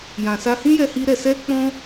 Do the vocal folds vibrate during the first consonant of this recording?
yes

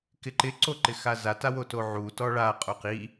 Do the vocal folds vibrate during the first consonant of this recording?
no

